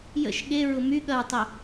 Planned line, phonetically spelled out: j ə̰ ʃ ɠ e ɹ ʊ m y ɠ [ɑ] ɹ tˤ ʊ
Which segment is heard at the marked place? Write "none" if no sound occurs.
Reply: ɐ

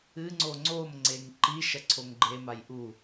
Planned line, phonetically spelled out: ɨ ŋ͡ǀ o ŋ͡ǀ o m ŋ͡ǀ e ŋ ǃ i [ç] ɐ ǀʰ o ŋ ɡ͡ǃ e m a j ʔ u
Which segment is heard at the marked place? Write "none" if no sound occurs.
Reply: ʃ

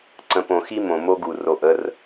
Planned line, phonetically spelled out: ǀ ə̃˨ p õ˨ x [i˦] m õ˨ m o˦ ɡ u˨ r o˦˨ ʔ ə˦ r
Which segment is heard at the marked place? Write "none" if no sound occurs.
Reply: i˦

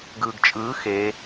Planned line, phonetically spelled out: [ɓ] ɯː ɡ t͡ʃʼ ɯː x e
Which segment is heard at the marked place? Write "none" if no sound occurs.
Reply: ɡ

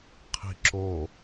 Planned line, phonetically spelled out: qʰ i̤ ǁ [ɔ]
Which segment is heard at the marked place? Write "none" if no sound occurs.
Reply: o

